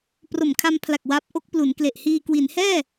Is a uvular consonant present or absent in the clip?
absent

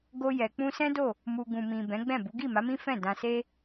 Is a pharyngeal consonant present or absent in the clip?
absent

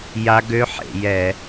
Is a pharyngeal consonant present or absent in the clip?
present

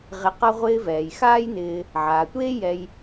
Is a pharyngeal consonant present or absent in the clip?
present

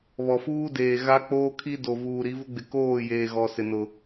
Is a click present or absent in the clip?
absent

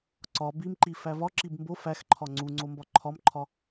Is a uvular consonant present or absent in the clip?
absent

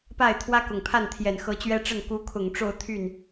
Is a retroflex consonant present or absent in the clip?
present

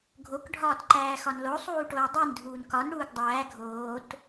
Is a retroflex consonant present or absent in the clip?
present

